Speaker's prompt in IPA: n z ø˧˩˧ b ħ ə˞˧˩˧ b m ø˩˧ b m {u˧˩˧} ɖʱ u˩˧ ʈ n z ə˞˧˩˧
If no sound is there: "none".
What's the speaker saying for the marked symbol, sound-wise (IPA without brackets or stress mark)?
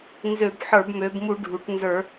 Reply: u˧˩˧